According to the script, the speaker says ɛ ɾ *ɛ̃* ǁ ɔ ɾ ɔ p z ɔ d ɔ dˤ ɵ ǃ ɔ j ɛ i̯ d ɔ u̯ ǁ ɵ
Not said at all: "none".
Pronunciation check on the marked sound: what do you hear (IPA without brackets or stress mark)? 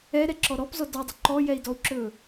ɛ